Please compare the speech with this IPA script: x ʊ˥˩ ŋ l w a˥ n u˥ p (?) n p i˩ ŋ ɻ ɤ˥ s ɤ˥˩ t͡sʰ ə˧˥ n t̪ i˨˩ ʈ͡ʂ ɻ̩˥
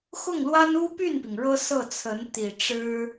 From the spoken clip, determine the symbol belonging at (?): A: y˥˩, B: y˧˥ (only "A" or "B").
A